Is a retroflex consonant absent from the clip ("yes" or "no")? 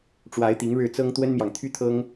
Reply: no